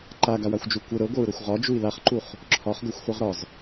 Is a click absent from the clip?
no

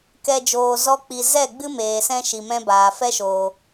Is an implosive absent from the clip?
yes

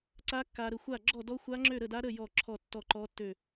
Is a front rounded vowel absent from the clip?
no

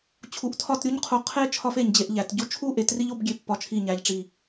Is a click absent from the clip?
yes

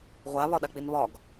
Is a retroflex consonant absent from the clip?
yes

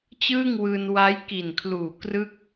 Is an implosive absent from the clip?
yes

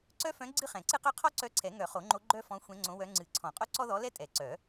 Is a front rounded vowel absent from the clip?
no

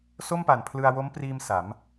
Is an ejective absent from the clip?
yes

